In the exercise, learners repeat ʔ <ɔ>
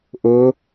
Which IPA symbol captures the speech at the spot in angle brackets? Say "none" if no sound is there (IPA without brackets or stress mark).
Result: ʊ